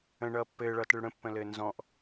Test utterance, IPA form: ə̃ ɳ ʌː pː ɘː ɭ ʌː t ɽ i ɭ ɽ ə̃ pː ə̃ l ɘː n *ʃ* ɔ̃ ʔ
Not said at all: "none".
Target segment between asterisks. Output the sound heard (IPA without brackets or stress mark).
z